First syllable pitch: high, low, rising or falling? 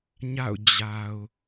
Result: falling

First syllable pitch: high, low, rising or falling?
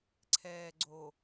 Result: low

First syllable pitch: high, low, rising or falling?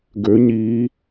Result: rising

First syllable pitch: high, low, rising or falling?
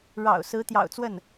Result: low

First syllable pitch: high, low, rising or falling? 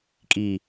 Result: low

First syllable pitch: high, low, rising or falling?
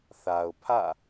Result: low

